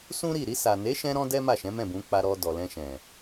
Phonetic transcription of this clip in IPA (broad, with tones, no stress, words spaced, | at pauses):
sũ˦ɾi˦˨ ɾi˧sa˨ne˨˦ʃɛ̃˧ ɾɔ̃˦dɛ˦ma˦˨ʃɛ̃˨˦ mɛ̃˦˨bũ˨˦k͡pa˧ɾɔ˧ dɔ˨lɛ̃˧ʃɛ̃˨